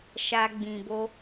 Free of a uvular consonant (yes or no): yes